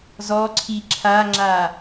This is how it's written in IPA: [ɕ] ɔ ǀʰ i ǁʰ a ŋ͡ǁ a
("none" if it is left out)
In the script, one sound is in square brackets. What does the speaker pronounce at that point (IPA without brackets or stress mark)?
z